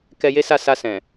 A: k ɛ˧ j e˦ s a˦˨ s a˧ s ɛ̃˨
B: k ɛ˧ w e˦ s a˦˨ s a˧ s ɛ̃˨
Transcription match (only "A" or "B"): A